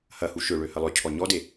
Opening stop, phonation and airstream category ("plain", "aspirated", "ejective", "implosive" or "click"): aspirated